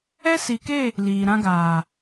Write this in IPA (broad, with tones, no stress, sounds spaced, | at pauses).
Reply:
ɛ˦ s i˨ k e˦˨ | l iː˨ ɾ ã˧ ɡ aː˨